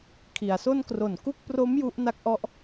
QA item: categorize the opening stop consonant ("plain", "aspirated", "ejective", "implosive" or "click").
aspirated